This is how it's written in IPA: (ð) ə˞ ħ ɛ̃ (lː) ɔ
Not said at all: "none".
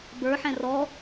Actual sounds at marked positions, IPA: b, r

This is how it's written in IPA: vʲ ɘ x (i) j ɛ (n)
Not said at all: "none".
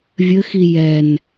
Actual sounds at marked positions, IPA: i, n

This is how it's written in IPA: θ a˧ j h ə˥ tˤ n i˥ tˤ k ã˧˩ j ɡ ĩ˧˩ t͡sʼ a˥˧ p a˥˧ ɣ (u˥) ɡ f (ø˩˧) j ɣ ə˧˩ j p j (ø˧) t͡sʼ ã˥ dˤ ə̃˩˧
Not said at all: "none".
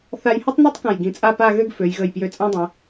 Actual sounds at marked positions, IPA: ø˥, ø˩˧, ø˧

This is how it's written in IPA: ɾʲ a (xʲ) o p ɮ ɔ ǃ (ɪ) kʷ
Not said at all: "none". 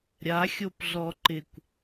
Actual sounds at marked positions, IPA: xʲ, ɪ

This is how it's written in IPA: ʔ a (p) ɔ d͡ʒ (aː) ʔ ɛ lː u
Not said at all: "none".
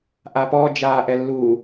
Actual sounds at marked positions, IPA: p, aː

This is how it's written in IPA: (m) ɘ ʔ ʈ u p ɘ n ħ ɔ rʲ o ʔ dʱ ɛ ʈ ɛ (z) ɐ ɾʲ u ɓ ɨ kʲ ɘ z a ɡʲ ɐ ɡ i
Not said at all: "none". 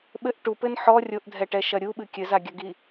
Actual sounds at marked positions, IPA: ɓ, ʃ

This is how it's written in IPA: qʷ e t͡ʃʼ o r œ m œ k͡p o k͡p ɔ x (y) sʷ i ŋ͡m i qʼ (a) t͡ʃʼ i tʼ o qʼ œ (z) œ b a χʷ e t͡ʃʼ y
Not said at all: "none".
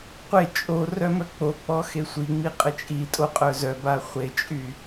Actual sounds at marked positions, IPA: e, ə, z

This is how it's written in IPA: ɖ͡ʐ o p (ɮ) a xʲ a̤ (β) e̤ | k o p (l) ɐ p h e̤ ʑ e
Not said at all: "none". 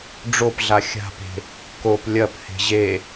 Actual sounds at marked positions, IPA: ɮ, p, lʲ

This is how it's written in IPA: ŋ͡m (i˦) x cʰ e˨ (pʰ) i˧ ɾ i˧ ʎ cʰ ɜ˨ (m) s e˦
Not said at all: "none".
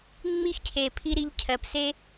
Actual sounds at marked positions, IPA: i˦, pʰ, p

